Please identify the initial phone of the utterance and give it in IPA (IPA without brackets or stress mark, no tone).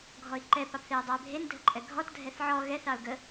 ɡʱ